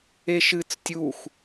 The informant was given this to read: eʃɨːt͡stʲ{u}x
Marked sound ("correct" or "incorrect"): correct